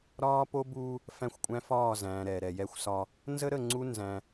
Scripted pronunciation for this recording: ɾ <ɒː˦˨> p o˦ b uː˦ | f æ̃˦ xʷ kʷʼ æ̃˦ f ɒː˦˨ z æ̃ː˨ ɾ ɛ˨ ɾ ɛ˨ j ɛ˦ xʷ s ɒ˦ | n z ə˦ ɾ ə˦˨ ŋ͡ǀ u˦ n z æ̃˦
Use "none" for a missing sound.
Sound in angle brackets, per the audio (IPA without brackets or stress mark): ɒː˦